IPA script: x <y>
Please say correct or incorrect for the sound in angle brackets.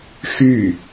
correct